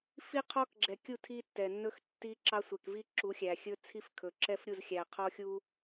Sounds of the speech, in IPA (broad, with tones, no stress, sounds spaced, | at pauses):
f i˦ qʰ ɔ˦ k ɡ͡ǁ ɛ˨ kʲ u˦˨ tʰ i˦ tː ɛ˨ nː ɵ˦ x tː i˦ ǁ ɑ˦ sʷ ɛ˨ k v i˦ ǁ u˨˦ xʲ æ˨ xʲ ɵ˦ t͡sʰ i˦ f kʰ ɵ˨ ǁ ɛ˦ f ɾʲ u˦˨ z xʲ æ˨ qʰ ɔ˦ xʲ u˦